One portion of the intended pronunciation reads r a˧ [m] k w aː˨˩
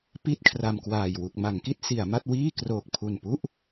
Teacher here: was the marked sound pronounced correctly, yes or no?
yes